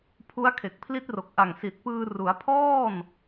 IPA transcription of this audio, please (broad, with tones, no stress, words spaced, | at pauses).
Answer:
pʰu˦˥a̯kʰe˨˩k̚pʰli˦˥t̚ro˨˩k̚ ʔa˨˩ŋsi˨˩t̚pɯː˧ ru˩˦a̯pʰɔː˥˩n